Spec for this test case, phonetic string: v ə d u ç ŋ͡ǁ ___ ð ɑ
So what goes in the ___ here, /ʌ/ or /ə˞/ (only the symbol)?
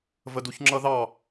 ʌ